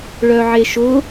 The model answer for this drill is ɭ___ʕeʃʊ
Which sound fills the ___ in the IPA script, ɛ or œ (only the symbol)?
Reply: œ